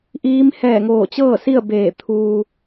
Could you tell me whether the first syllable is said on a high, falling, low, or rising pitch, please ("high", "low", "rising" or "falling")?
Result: rising